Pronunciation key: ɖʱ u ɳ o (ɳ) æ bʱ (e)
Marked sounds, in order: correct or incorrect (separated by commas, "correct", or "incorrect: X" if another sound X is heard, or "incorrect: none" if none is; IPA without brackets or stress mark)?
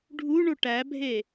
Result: incorrect: ʈ, correct